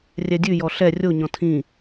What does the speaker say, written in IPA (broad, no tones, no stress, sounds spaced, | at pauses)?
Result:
rʲ ɛ dʲ ʉ j ɔ ɬ ɛ rʲ o ɲ ɔ̃ tʰ ĩ